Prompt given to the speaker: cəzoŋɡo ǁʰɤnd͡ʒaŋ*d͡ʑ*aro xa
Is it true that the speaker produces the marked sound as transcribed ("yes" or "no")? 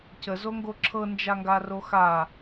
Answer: no